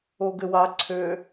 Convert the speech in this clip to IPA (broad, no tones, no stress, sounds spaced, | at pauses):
o ɡ ɘ w a ǀʰ ø